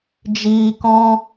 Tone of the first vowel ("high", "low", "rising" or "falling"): low